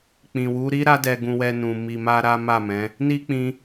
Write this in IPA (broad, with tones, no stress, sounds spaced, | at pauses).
k͡p ĩ˨ w u˨˦ ɾ i˦ ɾ a˦ d ɛ˧ ɡ ũ˧ w ɛ˧ n ũ˨ m i˧ m a˦ ɾ a˦ m a˦˨ m ɛ̃˨˦ | n i˦ k͡p ĩ˦